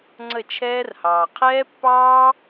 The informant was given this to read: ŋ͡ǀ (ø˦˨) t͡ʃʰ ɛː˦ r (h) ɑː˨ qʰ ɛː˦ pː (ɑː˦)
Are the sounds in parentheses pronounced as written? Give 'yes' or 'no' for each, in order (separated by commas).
no, yes, yes